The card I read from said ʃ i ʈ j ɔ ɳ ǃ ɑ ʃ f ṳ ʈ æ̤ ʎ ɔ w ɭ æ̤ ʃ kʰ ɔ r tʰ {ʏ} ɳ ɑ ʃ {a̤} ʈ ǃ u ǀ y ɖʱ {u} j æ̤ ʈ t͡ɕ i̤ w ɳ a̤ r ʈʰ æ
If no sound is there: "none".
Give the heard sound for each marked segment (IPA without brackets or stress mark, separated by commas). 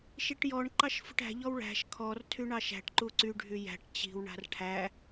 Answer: y, æ̤, y